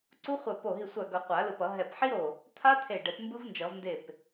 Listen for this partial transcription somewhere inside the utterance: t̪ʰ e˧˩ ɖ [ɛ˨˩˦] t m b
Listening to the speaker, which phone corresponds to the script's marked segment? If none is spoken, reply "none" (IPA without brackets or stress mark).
ɛ˨˩˦